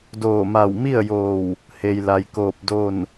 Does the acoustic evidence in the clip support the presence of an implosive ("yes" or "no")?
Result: no